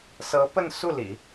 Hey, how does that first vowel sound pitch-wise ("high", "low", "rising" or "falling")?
rising